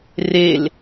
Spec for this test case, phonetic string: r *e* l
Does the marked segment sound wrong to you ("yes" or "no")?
no